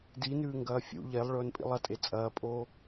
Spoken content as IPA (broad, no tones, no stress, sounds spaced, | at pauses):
d i n ʉː ŋ ɡ ɐː fʲ ṵ ʎ e lˠ ɭ ɵː n pʼ ḭ lˠ ɐ tʼ e t͡sʼ ɐː pʼ oː